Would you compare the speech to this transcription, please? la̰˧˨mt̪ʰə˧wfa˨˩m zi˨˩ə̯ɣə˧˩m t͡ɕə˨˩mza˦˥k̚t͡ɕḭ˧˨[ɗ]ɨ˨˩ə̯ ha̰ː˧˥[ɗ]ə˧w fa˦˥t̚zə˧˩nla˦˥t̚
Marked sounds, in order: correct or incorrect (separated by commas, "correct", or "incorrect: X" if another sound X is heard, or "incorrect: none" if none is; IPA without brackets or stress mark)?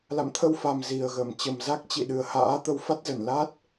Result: correct, incorrect: t̪